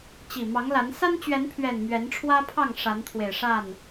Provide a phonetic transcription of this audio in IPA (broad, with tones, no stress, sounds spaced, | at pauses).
t͡ɕ i˨˩ m ɑ˨˦ ŋ l a˨˦ n s a˦ n t͡ɕ ɥ ɛ˨˦ n pʰ ɥ ɛ˨˩ n m ɥ ɛ˨˦ n ʈ͡ʂʰ w ä˦ pʰ ɑ˥˨ ŋ ʂ a˨˦ n t̪ʰ w e˨˩ ɪ̯ ʂ a˥˨ n